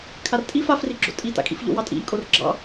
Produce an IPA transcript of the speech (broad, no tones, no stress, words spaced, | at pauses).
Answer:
kʰartʼif afriɡ͡ǁo̰ tʼita̰kʼḭf ʎo̰wɑtʼḭʎkʼor ɡ͡ǁɑ̰